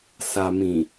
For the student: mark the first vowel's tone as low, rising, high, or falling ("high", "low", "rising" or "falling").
low